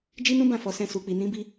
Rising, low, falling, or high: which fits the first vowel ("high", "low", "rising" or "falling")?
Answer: high